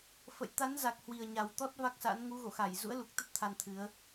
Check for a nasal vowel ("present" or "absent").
absent